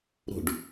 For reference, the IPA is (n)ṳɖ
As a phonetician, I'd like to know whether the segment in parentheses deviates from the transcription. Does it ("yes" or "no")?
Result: yes